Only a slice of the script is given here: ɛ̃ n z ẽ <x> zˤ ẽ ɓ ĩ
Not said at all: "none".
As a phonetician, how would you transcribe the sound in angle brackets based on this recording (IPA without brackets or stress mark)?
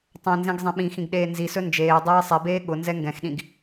ɡ